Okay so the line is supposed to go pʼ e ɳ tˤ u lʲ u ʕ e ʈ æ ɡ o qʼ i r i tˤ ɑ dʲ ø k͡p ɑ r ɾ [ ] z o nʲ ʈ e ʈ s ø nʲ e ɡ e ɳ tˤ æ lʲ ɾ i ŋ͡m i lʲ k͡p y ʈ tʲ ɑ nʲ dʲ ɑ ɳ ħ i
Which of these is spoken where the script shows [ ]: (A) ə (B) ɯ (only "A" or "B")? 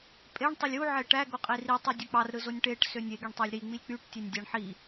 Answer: B